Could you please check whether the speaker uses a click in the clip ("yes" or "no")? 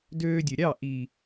no